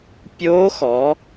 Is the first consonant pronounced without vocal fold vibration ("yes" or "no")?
yes